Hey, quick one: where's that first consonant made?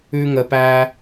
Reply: velum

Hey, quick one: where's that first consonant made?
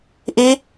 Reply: throat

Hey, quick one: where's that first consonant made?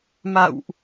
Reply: lips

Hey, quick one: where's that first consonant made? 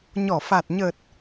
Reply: palate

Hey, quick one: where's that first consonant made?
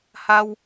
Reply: throat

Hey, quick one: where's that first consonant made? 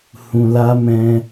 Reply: throat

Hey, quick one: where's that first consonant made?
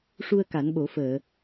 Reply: retroflex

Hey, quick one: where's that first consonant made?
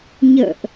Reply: palate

